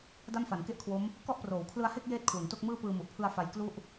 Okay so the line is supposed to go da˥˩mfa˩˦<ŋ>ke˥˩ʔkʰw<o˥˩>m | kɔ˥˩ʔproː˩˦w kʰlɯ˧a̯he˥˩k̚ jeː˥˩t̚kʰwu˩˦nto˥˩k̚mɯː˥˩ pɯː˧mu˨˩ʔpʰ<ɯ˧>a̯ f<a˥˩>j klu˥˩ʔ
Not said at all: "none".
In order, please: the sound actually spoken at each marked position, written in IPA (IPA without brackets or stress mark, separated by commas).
n, o˦˥, ɯ˧, a˧